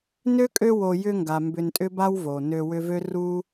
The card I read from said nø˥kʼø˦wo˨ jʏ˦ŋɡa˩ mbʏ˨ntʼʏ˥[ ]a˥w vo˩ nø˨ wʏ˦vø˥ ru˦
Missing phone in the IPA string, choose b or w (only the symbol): b